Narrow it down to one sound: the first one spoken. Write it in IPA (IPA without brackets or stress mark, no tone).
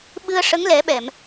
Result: ɓ